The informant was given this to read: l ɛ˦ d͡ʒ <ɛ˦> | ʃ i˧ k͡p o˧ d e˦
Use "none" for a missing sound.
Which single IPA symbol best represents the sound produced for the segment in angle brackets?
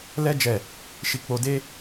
ɛ˦˨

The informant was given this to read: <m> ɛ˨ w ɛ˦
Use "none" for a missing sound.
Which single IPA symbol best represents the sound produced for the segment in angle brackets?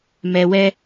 m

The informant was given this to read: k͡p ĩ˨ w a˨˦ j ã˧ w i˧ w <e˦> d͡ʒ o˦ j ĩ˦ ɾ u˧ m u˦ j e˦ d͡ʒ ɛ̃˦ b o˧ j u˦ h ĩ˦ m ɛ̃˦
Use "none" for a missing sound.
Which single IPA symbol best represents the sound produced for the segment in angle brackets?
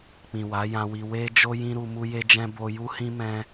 e˦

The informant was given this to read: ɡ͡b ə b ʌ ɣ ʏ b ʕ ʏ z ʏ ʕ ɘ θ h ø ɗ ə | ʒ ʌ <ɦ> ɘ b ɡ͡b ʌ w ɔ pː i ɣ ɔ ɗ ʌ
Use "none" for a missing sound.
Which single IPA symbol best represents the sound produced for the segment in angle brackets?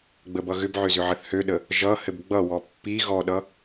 h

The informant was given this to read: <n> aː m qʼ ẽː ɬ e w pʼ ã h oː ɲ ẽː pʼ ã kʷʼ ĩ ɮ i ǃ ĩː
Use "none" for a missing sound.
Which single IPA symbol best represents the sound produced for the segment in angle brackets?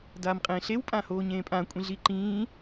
d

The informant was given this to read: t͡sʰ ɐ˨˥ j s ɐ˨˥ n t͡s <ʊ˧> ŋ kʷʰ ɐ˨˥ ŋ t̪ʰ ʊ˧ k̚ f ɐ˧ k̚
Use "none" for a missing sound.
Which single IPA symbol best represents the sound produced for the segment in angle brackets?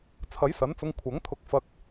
ʊ˧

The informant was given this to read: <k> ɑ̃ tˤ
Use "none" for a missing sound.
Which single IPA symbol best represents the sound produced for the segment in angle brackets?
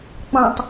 k͡p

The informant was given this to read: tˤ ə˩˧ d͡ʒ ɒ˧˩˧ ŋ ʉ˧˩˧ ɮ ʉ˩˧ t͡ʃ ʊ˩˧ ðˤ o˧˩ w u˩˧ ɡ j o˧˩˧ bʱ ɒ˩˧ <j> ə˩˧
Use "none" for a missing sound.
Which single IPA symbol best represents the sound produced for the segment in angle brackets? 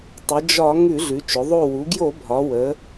w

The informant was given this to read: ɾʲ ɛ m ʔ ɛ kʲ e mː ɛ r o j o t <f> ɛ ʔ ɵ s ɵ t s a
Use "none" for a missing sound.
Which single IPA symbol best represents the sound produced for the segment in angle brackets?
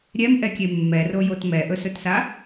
m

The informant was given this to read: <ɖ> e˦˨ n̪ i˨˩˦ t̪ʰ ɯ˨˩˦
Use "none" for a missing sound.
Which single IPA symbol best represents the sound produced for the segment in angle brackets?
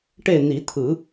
ʈ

